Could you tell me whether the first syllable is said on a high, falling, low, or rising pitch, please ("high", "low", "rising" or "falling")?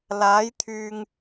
rising